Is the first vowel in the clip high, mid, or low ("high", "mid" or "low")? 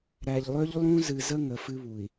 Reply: low